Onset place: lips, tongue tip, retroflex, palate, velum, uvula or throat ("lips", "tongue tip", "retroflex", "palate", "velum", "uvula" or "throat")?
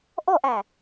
throat